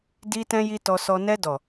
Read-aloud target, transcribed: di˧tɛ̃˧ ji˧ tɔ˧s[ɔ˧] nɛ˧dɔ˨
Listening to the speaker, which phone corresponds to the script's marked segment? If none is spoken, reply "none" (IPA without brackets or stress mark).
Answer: ɔ˧